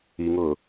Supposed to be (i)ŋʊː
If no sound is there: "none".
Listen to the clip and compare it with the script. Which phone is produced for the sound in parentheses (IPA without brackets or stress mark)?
i